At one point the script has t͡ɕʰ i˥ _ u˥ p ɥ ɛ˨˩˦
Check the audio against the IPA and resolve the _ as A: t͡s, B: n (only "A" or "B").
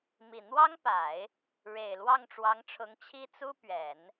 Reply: A